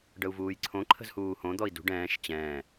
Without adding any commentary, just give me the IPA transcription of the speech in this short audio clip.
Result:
ɖəu̯vuːjǀʰõ ǃʰə̤zhuːhõ d̪ɔi̯dṳ ɖɛ̃ːʃ t͡ɕɛ̃ː

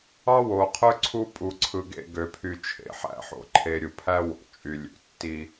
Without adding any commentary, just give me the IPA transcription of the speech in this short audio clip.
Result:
ɑ˦wo˨qʰø˦ ǀʰu˦pʼu˨ǀʰɯ˨ɡḛ˦˨ ɡø˨pʰy˨ t͡ʃʰḛ˨ħæ̰˦ħo̰˨ǃʰe˨ ɾʲu˨pʰæ˦wo̰˨ t͡ʃʼy˨lʲṵ˨tːi˦

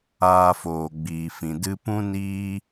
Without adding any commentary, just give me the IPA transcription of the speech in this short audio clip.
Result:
aː˧foː˨ɡ͡biː˨fĩ˨ dɨ˧pũ˦ niː˦

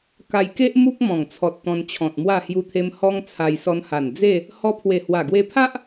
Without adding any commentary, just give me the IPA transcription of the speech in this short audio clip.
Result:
ka˧jke˦ʔ mu˦k̚mɔ̃˨˩ŋt͡sʰɔ˨t̚ t̪ɔ̃˧nt͡ɕʰɔ̃˨t̚mwa˥˧ hju˧t̪ʰe˧m hɔ˧ŋ t͡sʰa˧jsɔ˧nha˨˩n d͡ze˥˧ | hɔ˧pʰwe˨˩ hwa˨˩ɡwe˧pʰa˦ʔ

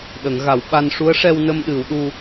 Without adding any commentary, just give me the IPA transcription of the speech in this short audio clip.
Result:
ɗə˨˩˦ŋɣa˨˩˦wɓa˧n ʂu˧˥ə̯ʂɛ˧wnə˧m ɗɨ˨˩˦wɗu˧

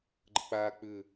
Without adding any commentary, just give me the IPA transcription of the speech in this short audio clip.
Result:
ɡ͡ǃə̰k͡paːk͡pʏ

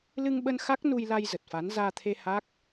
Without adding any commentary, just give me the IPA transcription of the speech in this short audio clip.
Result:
lɨ˧ŋɓə˧n xa˦˥k̚nu˧jla˧j zə˨˩t̚fa˨˦n zaː˧t̪ʰe˧ ha˦˥k̚

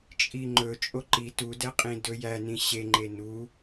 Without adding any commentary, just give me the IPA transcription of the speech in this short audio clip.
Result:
t͡ʃʼiŋ͡ǃɵ t͡ʃʼoǃi tudɛqʼĩ dɵjænĩ ɕeŋ͡ǃe nu

